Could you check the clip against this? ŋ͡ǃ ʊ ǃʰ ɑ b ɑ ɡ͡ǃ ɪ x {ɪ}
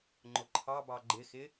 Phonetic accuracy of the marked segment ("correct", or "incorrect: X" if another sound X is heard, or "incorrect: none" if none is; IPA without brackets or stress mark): correct